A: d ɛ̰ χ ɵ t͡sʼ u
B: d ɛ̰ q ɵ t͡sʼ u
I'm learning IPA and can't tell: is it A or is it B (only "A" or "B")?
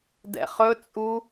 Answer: A